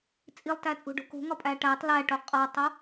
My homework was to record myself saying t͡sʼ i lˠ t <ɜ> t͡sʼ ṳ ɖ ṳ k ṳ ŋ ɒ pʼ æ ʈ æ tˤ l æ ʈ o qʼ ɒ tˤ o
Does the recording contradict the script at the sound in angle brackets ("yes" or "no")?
yes